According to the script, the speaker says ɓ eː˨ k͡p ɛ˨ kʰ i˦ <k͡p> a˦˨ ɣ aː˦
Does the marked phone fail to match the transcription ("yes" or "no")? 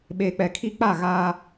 no